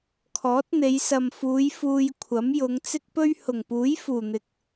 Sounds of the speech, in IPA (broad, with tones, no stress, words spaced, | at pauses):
kʰɔː˨˥t̚n̪e˨˧j sɐ˨mfuː˨˧j fuː˧jkʷʰɐ˨˥mjʊ˨˧ŋ t͡sɪ˥k̚pɵ˥ɥ hʊ˨˩ŋpuː˨˥j fuː˨˩n̪ɪ˨k̚